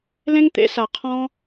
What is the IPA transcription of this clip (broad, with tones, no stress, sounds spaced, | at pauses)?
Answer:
l ẽ˦ ŋ t̪ ḛ˧ s a˨ qʰ ɔ̃˦